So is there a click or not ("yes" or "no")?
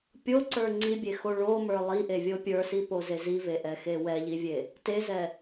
yes